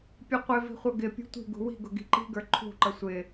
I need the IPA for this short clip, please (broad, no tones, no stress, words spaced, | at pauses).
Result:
pʲʊqʷɪvi̤ χʷʌɡɪpʲṳ tʷi̤ɡṳ wi̤ɡʊ ɡi̤ǃi̤ɡə˞ ǃʰṳǃʌ sʷɪ